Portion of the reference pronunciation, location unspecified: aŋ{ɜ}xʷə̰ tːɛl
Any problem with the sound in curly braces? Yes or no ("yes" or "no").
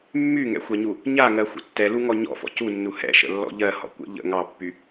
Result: no